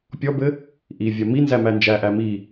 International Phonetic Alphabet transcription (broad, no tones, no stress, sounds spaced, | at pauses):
pʲ ɔ b ɘ | ʔ i vʲ a m i n z æ m æ n d͡ʒ æ ʔ æ m i